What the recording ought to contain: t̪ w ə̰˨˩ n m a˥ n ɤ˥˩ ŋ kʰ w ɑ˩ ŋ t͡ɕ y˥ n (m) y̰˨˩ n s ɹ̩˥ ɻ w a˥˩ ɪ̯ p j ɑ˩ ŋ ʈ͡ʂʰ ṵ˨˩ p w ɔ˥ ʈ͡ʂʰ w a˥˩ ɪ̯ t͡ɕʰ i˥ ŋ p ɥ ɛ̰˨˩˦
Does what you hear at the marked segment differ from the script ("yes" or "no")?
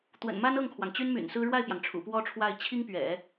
no